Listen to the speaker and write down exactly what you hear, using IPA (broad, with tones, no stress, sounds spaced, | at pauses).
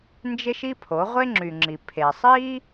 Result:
n d͡ʒ e˥ ʃ i˥ pʰ o˩˥ ʁʷ e˥ ŋ͡ǁ y˩ ŋ͡ǁ i˩ pʰ e˩ sˤ i˥